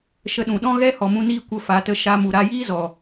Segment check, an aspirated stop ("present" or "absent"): absent